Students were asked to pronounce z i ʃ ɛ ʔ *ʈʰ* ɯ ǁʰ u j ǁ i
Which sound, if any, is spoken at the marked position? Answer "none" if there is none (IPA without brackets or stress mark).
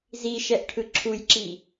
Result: ʈʰ